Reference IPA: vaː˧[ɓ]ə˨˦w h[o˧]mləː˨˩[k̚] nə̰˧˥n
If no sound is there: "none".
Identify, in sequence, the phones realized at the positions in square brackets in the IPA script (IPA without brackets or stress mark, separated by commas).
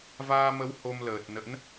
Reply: m, o˧, t̚